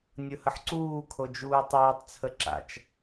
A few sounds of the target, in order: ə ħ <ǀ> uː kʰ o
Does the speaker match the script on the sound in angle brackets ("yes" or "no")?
yes